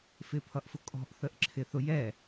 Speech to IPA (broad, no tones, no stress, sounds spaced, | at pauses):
f ɪ pʰ ʌ ʔ f ʊ kʼ ɔ̤ ʔ θ ə ʔ ǁʰ ɪ θ ʊ j ɛ